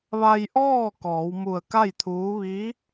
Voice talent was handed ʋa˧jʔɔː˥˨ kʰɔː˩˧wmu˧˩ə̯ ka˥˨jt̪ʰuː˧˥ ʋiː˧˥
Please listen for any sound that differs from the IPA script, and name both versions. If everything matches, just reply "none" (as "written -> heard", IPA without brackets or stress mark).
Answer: kʰ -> k